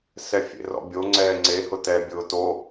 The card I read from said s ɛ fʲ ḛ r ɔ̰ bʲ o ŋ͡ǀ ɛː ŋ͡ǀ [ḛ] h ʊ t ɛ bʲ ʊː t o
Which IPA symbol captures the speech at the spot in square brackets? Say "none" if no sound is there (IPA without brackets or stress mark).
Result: e